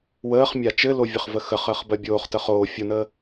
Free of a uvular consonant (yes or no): no